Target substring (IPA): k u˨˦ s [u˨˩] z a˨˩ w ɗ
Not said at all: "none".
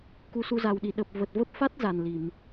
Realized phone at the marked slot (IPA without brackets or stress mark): u˧